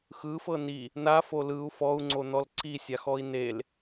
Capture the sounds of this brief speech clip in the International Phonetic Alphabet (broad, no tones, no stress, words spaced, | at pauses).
xɯfɤ ni | nafo lɯu̯ fɔu̯ŋ͡ǀon̪ɔl ǀisʲaxɔi̯ nel